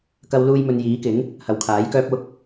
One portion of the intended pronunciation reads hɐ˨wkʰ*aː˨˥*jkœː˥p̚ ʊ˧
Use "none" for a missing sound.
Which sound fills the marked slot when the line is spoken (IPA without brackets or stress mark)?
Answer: aː˨˥